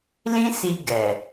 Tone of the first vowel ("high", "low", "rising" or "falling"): high